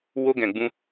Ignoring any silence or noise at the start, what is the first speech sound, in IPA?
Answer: w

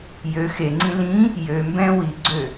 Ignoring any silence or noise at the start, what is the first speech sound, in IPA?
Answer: j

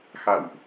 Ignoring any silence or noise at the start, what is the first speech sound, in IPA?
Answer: x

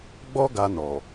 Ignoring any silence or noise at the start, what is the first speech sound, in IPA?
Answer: ɡ͡b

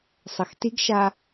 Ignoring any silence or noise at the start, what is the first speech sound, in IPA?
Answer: sˤ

